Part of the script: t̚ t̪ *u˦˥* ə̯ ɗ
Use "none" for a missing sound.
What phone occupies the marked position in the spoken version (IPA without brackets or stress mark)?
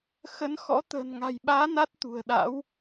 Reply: ṳ˨˩